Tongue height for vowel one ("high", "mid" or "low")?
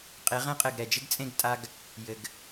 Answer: mid